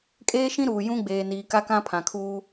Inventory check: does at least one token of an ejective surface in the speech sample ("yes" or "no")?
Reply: yes